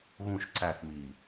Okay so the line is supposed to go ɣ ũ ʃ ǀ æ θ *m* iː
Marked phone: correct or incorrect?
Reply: correct